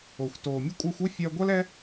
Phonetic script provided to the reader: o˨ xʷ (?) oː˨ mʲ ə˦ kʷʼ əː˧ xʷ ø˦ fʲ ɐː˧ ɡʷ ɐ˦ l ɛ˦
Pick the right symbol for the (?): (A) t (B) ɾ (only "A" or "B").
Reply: A